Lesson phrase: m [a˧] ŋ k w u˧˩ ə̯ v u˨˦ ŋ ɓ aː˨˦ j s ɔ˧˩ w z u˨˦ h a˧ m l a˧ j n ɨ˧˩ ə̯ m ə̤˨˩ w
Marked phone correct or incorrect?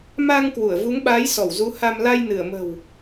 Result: correct